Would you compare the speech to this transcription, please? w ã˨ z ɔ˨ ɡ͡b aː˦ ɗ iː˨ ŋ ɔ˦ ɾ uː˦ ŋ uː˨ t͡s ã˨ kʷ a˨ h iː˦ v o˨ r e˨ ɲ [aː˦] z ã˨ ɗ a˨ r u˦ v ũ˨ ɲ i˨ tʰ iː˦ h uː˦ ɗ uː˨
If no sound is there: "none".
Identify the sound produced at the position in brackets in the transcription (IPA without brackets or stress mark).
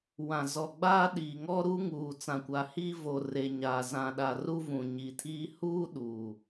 aː˨